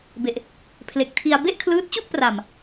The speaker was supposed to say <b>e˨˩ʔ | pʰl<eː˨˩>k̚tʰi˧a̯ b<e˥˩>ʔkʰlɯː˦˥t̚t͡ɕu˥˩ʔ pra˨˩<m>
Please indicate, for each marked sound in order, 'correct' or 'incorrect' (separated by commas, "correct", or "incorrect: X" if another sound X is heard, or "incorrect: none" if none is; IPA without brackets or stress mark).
correct, incorrect: e˨˩, correct, correct